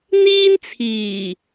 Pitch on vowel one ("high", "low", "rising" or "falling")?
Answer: high